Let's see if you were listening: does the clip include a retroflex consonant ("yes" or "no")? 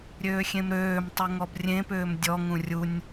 no